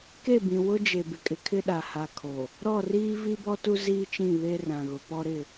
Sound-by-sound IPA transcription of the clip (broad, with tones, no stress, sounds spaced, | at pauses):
k e˦˨ b ĩ˨ w ʊ˦ d͡ʒ e˨ b ɪ˨ kʼ ɪ˨ kʰ ɪ˦ ɗ a˨ h a˨ kʰ o˨ | ɾ ɔ˦˨ r iː˦ v i˦ b ɔ˦ t u˦ z iː˦ t͡ʃ ĩ˦˨ β e˦ r ã˨ ɣ ʊ˨ p ɔ˦ ɾ ɪ˦˨